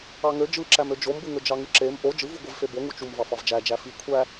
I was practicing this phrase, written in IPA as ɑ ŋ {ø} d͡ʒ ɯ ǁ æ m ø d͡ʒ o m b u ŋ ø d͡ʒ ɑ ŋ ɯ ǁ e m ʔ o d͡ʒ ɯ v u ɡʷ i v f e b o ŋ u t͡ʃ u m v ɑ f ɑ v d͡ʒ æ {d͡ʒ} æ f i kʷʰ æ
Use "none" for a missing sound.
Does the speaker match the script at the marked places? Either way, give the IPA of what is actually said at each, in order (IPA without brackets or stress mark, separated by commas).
ø, d͡ʒ